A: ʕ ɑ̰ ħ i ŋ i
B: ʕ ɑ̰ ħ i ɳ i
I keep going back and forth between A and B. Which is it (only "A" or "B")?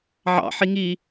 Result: A